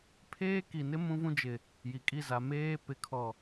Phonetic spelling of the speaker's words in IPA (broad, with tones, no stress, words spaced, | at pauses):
pʰeː˦ki˨nɪ˦ mũ˦vũ˦ d͡ʒɪ˨ | ji˨ kʼi˦˨za˨ meː˦ pɪ˨˦kʰɔ˨